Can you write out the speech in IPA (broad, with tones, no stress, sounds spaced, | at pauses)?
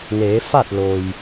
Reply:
n eː˩˧ f a˥˨ t̚ l o˩ j